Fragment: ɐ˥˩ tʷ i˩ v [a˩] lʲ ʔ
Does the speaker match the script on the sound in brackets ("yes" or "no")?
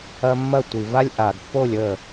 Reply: no